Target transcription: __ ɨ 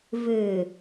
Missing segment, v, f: v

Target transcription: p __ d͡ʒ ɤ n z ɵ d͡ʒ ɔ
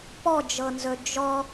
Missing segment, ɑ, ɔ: ɔ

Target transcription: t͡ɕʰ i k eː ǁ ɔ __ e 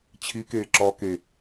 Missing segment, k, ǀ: k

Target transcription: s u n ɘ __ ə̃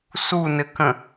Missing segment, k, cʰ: k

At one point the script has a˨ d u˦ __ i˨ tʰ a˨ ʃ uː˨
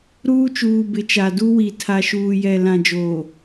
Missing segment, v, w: w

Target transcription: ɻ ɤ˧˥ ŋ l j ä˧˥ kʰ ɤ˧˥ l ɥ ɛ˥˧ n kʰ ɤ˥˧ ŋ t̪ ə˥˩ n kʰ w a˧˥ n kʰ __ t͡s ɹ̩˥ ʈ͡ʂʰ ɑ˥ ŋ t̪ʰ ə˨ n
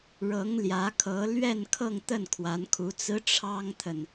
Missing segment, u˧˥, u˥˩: u˧˥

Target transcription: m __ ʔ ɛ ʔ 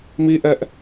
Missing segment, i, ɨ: i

